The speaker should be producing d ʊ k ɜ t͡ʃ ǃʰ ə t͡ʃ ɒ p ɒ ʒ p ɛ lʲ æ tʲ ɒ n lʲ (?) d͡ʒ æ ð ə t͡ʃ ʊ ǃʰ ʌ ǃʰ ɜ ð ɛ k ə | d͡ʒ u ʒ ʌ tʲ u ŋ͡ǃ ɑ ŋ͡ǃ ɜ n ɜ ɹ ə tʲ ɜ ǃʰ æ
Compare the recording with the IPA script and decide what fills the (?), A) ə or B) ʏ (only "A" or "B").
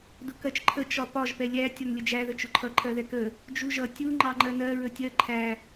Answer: A